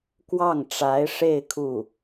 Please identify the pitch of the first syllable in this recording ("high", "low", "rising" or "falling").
falling